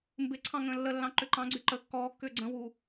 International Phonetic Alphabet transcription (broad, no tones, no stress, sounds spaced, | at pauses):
m b ɪ ǀʰ ɑ̃ ŋ ə̃ː lː ə lː ɑ̃ ǃ ʏ ǃ ɑ̃ ɡ͡ǀ y ǃ ə kː ɔː kː ʏː ɡ͡ǀ ə̃ w u